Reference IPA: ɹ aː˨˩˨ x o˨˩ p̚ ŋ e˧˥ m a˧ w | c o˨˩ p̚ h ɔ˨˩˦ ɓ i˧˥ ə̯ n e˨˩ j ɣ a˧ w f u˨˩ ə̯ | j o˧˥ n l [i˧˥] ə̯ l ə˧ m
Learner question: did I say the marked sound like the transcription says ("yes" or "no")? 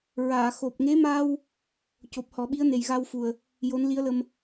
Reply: yes